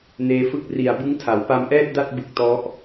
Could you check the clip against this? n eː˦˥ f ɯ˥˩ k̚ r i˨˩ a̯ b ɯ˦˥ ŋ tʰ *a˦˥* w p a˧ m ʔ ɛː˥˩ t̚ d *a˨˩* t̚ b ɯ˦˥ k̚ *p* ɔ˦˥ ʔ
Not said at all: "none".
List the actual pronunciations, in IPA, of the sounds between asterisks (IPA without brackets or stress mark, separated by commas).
a˩˦, a˥˩, t